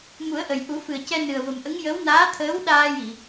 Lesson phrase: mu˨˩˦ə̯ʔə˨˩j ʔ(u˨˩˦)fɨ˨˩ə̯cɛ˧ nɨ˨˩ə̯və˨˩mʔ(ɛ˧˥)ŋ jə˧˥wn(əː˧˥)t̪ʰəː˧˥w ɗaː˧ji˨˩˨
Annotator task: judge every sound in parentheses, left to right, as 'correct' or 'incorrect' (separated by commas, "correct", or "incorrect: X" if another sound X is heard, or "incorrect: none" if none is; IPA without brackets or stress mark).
correct, incorrect: ə˧˥, incorrect: aː˧˥